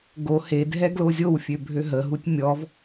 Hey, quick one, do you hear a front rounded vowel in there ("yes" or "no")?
yes